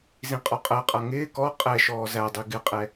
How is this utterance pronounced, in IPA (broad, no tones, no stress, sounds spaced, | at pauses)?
z ĩ qʼ ɔ qʼ ɜ qʼ ʌ ŋ ɪː k ɔ qʼ ɛ ʃ ɔː z æ dˤ i ɡ ɪ qʼ ɛ